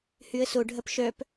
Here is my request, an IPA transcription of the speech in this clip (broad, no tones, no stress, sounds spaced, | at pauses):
h y ə̯ s o ɖʱ ɐ p ʃ œ p